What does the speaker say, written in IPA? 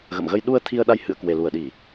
ɣ ə̰˧˨ m ɣ ə˧ j ɗ u˧ ə̯ t̪ʰ i˧ ə̯ ɗ a˧ j h ɨ̰˧˨ ə̯ k w e˨˩ l u˧˩ ə̯ ɗ i˧˩˨

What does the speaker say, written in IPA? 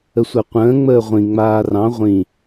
ə sʷ a qʷ ə̃ː ŋ͡m əː ʁʷ ĩ ŋ͡m aː r ɑ̃ ʁʷ ĩ

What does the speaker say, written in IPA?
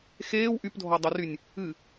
x eː w ʔ y p dʱ ɔ dˤ u r y nʲ | ɨ

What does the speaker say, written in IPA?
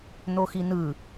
n̪ o x i n̪ ɯ

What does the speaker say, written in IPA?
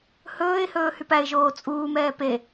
h ɵː ɪ̯ h ɵː h y p æ ɪ̯ ʒ oː t͡sʼ uː m ɛː p e

